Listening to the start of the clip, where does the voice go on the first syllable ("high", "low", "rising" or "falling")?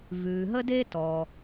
low